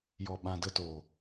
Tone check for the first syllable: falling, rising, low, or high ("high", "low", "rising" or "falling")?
low